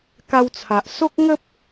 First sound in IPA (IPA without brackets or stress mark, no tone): k